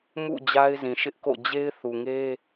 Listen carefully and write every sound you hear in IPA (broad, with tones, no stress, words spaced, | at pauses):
mṵ˦˨ d͡ʑa˦ɪ̯zĩ˨ʃɪ˦ʔko̰˦˨ d͡ʑe˦ɪ̯θu˨ŋe˦